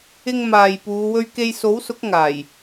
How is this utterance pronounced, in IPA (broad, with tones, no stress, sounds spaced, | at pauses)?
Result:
ɪ˥ ŋ m aː˨ j p uː˨˧ w ɵ˧ ɥ k e˧ j s o˨˥ w s ʊ˨˥ k̚ ŋ aː˨˩ j